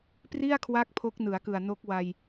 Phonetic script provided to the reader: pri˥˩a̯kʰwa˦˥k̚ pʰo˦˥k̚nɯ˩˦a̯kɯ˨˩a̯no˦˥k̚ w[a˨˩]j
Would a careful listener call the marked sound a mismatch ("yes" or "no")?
yes